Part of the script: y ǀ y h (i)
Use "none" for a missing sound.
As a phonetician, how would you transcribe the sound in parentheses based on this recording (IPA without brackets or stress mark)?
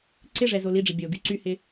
ɪ